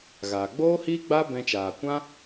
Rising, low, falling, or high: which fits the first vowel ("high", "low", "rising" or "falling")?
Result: low